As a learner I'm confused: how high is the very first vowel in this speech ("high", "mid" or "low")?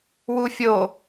high